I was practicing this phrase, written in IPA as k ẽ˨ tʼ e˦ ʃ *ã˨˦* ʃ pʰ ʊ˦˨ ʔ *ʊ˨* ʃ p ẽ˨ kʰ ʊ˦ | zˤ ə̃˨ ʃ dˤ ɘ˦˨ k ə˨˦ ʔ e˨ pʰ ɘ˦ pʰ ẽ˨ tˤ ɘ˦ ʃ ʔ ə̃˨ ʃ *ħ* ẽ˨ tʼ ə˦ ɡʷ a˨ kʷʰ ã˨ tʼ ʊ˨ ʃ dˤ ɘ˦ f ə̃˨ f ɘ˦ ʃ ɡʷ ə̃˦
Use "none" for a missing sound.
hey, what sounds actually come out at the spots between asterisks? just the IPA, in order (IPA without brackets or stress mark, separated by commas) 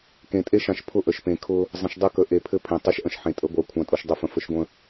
ã˨, ə˨, ħ